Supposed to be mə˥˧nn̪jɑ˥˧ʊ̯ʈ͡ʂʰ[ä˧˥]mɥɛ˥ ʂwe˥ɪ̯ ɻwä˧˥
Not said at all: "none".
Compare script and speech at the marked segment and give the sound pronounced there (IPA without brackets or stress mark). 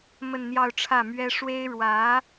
ä˥˩